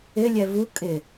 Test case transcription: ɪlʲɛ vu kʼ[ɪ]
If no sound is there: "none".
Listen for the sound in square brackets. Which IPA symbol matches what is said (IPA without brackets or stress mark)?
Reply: ɪ